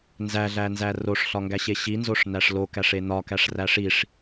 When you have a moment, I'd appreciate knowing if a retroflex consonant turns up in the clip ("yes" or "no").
yes